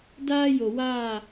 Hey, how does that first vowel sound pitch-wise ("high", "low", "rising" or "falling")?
high